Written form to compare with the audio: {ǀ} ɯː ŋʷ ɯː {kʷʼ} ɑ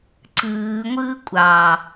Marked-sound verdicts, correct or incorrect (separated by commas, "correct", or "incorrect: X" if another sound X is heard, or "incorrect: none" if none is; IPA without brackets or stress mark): correct, correct